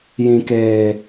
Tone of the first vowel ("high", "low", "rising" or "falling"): low